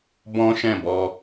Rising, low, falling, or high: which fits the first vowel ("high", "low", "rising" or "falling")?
high